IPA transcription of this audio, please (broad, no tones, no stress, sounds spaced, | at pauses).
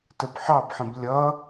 t ə b ħ ɑ b ħ ə̃ b lʲ ʌ